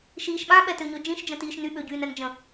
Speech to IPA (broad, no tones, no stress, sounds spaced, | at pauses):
ʃ iː ʃ ɓ ã ɓ ɛ t ø ɲ ø d͡ʒ ĩ ʃ d͡ʒ ə̃ t iː ʃ n y ɓ ø ɟ yː n ɛ n d͡ʒ ə̃